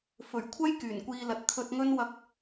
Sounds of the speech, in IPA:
f ɵ˨˩ ɥ kʷʰ ɐ˥ j k yː˨˩ n kʷ iː˨˧ l ɐ˨ t̚ t̪ʰ ɵ˧ t̚ ŋ ɵ˥ n w ɐ˧ k̚

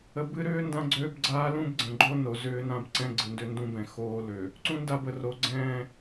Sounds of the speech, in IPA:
ə˨ b ɨ˦ ɾ ʏː˦ n d ã˦ ɡ͡ǀ øː˦ b ɡ͡ǀ aː˦ l ũ˦ b ɡ͡ǀ ə̃˨ ɡ͡ǃ o˦ n o˨ z ʏː˦ n ã˦ b ǀ ɛ̃˦ ɡ͡ǀ ɨ˨ n d ʏ˦ n d ũ˦ b ɛ̃˨ x oː˦ l ø˨ | ǀ ũ˦ n d a˦˨ b ə˨ r o˨ ɡ͡ǀ ɛ̃ː˦˨

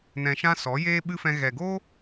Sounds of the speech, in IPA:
n ɛ̃˧ ʃ ã˦ s ɔ˨˦ j eː˦ ɓ ɨ˦ f ɛ̃˧ ɣ ɛ˨ ɡ o˦

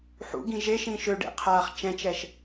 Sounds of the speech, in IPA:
ħ ṵ ɡ ĩ ʒ e ʃ ĩ ʃ ø ɖ ḛ qʰ aː χ t͡ʃ ɛ̃ t͡ʃ ɛ ʃ

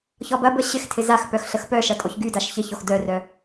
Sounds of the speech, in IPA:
ç ɔ b ɐ b ə ɕ ɪ x tʰ ɪ z a x p œ x ɬ ə x p œ ʃ ɐ tʼ o ç ɡ y d a ʃ ç ɪ ç o x d œ r œ

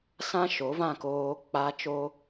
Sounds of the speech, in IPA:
s ã˦ ʃ o˨˦ v ã˦˨ k oː˦ k͡p a˦ t͡ʃ o˦

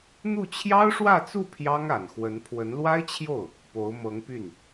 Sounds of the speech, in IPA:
n̪ u˥˩ t͡ɕʰ j ɑ˥ ʊ̯ ʂ w ä˥˧ t͡s u˥˩ pʰ j ɑ˥ ŋ a˨˩ n x w ə˧˥ n pʰ w ə˧˥ n l w a˥ ɪ̯ t͡ɕʰ j o˥˩ ʊ̯ | p o˧˥ ʊ̯ m ɤ˧˥ ŋ p y˥˩ n

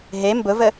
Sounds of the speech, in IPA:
ɦ e m b ʊ v ə

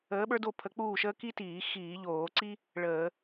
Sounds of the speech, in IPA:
əː˧˥ ɓ ə˞˥ d o˥˨ pʰ ə˧˥ k͡p uː˥˨ ʃ əː˥ k i˥ t iː˧˩˧ x iː˧˩˧ ʎ oː˧˩˧ ǀ i˥ | ɭ əː˧˩˧

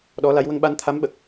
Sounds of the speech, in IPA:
ɗ ɔ˧˥ l a˧˥ j w ə˧ ŋ ɓ a˧ n t̪ʰ a˧˥ m ɓ ə˨˩ k̚

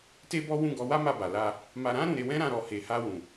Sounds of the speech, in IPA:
t e˦ b ɔ˦ w ũ˦˨ ɡ ɔ˨˦ w a˦ m a˦˨ b a˨ l a˧ | m a˧ ɾ ã˦ ɾ ũ˧ ɾ e˧ w ɛ̃˦ ɾ ã˦˨ ɾ ɔ˧ h e˧ h a˧ w ũ˨

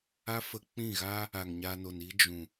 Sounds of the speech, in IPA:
a˦ f ə˧ k͡p ĩ˦˨ ɣ aː˦ | a˨ ŋ ɲ a˧ n o˨ n i˦ d͡ʒ ũ˨

